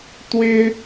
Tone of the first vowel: high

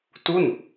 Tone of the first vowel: falling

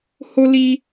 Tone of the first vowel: high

